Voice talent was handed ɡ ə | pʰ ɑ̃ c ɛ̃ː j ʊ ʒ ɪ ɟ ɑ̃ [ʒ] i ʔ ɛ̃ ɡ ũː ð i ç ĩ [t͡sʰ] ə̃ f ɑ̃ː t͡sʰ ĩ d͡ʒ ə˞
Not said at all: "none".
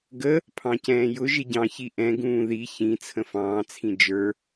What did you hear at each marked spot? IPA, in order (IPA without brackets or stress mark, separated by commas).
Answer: ç, t͡sʰ